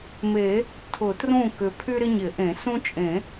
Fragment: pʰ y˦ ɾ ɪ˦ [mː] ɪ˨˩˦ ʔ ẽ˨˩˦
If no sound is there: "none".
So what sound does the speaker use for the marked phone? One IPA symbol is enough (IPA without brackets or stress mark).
ɲ